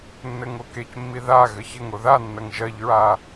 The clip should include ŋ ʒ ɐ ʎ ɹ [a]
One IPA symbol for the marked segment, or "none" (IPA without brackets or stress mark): a